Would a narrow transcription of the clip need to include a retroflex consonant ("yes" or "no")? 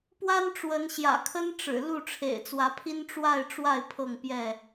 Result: yes